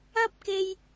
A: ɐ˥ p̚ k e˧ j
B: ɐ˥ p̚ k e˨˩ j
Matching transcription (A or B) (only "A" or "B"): A